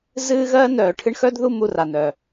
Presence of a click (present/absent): absent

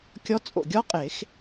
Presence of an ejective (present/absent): present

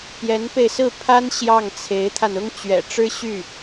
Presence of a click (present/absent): absent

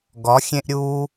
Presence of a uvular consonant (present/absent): absent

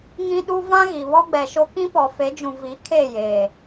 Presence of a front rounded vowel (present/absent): absent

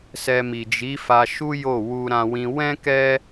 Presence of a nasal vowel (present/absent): present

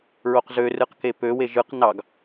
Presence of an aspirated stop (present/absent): absent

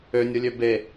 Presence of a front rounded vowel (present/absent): present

